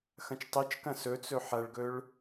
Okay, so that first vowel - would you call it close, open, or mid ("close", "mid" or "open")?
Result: open